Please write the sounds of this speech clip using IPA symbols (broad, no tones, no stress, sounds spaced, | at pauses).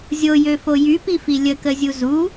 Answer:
zʲ o j ø f o j y p i f i lʲ ə k ə zʲ u z u